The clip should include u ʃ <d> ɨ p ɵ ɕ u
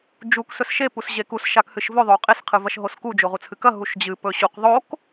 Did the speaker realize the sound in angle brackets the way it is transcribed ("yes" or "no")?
no